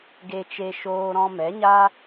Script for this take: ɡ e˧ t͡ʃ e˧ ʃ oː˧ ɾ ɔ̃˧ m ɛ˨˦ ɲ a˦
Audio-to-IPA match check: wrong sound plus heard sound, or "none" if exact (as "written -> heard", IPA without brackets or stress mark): none